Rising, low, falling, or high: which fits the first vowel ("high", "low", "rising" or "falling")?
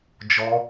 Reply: high